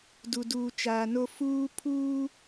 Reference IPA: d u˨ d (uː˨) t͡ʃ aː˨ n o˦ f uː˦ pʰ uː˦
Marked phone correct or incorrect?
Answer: correct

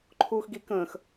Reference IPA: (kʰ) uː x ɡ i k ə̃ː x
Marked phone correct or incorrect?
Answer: incorrect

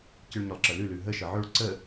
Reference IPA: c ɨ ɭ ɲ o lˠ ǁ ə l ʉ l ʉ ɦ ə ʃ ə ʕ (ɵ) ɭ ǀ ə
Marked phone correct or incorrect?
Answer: correct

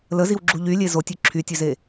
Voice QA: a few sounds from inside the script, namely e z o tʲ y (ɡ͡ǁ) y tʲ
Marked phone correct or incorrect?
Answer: incorrect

